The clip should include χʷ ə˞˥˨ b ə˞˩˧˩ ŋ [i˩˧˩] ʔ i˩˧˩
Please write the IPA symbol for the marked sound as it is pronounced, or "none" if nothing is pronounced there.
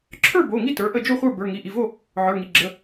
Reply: i˩˧˩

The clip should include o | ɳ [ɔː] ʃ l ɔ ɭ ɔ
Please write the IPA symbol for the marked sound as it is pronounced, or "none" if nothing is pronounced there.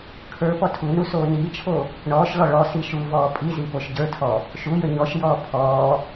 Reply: ɔː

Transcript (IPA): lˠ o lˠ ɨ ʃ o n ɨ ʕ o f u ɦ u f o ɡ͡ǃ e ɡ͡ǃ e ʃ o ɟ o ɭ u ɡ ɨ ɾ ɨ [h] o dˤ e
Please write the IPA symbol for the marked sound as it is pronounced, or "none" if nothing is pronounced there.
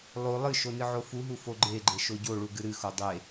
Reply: x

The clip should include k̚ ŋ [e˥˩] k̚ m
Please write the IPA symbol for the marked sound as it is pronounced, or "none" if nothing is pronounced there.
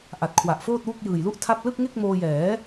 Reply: e˥˩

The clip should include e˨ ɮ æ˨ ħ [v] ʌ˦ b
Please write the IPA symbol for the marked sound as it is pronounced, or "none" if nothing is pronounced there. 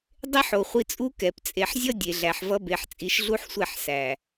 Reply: v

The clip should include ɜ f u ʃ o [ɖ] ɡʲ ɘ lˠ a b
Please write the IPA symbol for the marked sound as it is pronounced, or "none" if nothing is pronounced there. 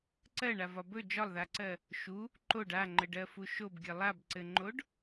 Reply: b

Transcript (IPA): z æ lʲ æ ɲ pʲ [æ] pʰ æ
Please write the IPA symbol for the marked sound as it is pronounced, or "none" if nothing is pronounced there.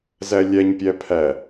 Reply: æ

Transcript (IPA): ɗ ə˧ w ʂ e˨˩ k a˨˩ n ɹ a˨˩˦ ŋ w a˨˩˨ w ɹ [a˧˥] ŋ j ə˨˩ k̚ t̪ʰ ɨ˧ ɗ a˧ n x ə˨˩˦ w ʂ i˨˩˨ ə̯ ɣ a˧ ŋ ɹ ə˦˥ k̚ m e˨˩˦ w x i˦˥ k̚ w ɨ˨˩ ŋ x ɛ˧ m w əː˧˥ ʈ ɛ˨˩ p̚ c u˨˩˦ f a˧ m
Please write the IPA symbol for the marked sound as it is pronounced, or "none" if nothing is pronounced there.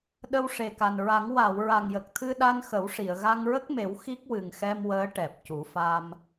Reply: a˨˩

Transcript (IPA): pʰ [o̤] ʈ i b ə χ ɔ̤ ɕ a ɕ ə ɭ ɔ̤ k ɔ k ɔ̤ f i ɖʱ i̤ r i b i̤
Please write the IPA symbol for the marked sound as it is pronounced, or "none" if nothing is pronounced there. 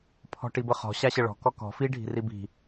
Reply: ɔ̤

